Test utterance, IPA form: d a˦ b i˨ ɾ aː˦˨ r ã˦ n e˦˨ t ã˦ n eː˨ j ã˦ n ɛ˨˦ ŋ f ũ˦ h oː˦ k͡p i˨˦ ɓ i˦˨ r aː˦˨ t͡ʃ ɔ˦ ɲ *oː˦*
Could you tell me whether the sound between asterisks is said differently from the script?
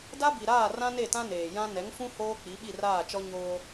no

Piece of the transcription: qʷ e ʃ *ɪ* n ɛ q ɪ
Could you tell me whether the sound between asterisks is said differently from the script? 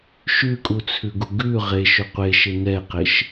no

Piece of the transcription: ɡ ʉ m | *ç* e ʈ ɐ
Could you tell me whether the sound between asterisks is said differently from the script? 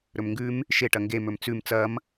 yes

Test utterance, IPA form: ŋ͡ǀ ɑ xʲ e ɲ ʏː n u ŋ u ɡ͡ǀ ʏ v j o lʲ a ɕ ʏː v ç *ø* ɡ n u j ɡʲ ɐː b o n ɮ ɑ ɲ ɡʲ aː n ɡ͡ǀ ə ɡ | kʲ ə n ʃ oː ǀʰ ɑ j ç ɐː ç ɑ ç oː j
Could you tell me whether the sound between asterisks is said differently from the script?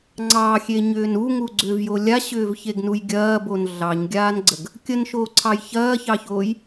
yes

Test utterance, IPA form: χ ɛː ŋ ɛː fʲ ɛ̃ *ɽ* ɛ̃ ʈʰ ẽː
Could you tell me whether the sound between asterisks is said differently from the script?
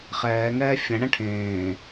no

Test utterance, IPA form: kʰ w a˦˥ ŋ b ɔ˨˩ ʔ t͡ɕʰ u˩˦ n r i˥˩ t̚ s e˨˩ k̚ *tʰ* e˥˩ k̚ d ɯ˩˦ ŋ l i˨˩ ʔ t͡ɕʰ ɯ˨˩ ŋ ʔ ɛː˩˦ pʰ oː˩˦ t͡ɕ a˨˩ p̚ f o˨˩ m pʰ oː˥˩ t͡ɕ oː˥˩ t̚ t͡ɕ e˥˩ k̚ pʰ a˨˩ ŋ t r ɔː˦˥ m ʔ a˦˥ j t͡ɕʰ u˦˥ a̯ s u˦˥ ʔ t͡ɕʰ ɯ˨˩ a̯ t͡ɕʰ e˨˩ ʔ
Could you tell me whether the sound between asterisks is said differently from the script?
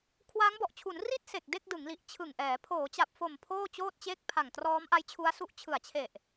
yes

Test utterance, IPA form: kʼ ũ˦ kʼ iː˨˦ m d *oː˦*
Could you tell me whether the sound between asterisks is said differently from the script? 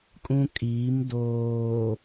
yes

